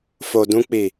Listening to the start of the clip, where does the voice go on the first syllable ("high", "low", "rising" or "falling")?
low